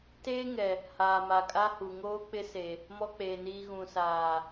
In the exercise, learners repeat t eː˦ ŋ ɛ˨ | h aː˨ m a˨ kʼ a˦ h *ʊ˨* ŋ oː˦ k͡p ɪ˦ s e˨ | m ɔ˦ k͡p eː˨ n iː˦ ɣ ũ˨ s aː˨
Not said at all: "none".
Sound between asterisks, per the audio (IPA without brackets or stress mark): u˨